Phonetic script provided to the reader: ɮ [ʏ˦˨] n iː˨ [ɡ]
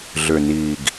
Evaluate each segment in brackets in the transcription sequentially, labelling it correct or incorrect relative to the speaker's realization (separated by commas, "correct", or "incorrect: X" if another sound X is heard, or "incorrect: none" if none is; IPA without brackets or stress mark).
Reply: incorrect: ʏ˨, correct